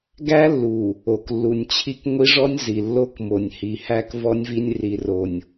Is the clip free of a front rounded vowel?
yes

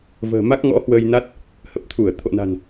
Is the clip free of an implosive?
yes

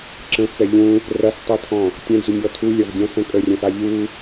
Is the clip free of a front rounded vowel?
yes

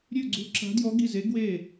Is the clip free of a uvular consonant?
yes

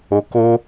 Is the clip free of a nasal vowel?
yes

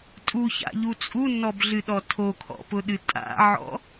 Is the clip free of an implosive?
no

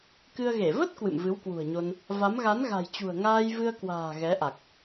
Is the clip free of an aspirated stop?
yes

